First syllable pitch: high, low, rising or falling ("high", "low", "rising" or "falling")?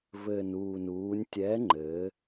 low